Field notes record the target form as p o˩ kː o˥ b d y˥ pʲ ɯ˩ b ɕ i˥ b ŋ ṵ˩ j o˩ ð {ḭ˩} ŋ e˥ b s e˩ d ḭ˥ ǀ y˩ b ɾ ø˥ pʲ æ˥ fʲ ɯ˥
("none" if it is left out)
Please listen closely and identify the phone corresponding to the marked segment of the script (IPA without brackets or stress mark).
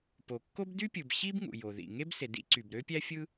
ḭ˩